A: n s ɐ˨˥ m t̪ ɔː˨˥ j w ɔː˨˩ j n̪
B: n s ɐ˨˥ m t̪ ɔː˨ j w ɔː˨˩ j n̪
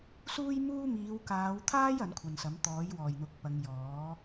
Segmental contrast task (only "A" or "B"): A